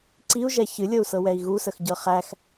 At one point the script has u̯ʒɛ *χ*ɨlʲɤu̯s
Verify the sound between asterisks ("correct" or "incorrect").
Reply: incorrect